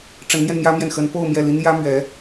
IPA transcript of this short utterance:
ʈ͡ʂ ə˧˥ n m j ɛ˧ n m j ä˥ m j ɛ˨ n x ə˧˥ n p o˥˧ ʊ̯ m j ɛ˥˩ l i˥ n j ä˥ m ɥ ɛ˧˥

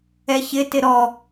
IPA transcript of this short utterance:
ɛ ç ɪ t ɪ ɾ ɔ

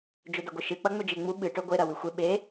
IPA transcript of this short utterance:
d͡ʒ ɵ d ɐ ɡʷ ɨ ʃ ɨ k͡p ɐ ŋ͡m ɵ d͡ʒ e ŋ͡m u ɓ ɨ ʈ ɵ ɡʷ e ɾ ɐ w ʉ xʷ e ɓ e

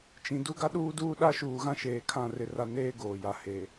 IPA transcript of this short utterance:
t͡ʃ ĩ˨ d u˦ ɡ a˦ ɗ uː˦ d uː˦ ɗ a˦ ʃ uː˨ ɣ ã˦ ʃ eː˨ kʰ ã˦˨ r ɪ˦ r a˦ n eː˦ ɡ oː˨ j a˨ h e˨

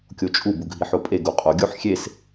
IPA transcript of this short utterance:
kʲ o t͡ʃʼ u b u ɡʱ i ħ o pʼ e ɡ u qʼ o ɡʲ o ħ xʲ e s

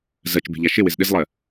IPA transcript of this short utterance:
z ɜ t͡ʃ b e̤ ʎ a ʃ ɪ w ɪ z ɗ ɪ z lˠ ɜ

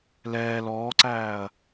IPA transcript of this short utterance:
l ɛː l ɔː ǀ æː ɐ̯

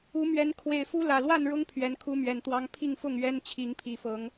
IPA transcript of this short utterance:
u˨˦ m ɥ ɛ˨˦ n kʰ w e˨˩ ɪ̯ f u˦ l ä˨˩ l w a˥˨ n ɻ ʊ˦ ŋ pʰ ɥ ɛ˨˦ n kʰ u˦ m ɥ ɛ˨˩ n t̪ w ɑ˦ ŋ pʰ i˥˨ ŋ f ʊ˥˨ ŋ ɥ ɛ˦ n t͡ɕʰ i˨˦ ŋ pʰ i˨˩ f ɤ˨˦ ŋ

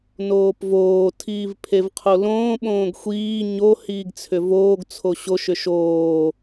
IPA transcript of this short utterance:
n oː p v oː tʰ iː v pʰ e v qʰ o l õː ɓ õː ɡ xʷ iː ɲ o h iː ɡ t͡sʰ ʏ v oː ɡ t͡sʰ o ɕ o ʃ ʏ ʃ oː

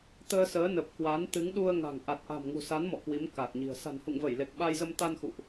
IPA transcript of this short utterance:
t̪ əː˧ s əː˨˦ n ə˨˩ p̚ k w a˨˦ n t̪ ɨ˨˦ ŋ ɗ u˧ ə̯ ŋ a̤˨˩ ŋ ʔ a˨˩ t̚ ʔ a̤˨˩ m ŋ ṳ˨˩ s a˨˦ n m ɔ̰˧˨ k w i˨˦ m k a˨˩ t̚ ɲ i̤˨˩ ə̯ s a̤˨˩ n h ṵ˧˨ ŋ v ə˧˩ j l e˨˩ k̚ ɓ a˧ j z ə˧ m t̪ a˧ n x ṵ˧˨ ʔ

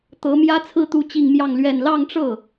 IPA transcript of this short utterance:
t̪ ɤ˧˥ m j ä˥ t͡sʰ ɹ̩˥˧ t̪ u˥˧ t͡ɕ i˥˧ ŋ m j ɑ˥˧ ŋ l ɥ ɛ˥˧ n l ɑ˥˧ ŋ ʈ͡ʂ ɤ˥˩

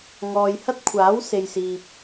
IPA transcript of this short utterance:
ŋ ɔː˨ j h ɐ˥ t̚ kʷʰ aː˨˥ w s e˨ j s iː˨ p̚

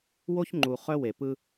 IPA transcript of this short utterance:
w o˦ ç ŋ͡ǃ u˨ χ œ˦ w e˨ p ɯ˦

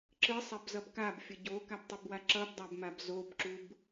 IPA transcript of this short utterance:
ǁ ɯ sˤ ɛ b z ʌ b k a b fʲ ʌ ɟ o k a b tˤ ɯ b w a ǁ ʌ b dˤ a b m a b z o b ǁ u b

